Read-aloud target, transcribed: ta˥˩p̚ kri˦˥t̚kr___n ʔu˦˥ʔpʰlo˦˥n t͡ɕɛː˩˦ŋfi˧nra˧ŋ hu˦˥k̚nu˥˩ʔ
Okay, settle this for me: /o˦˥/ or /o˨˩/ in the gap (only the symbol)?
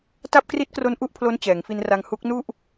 o˦˥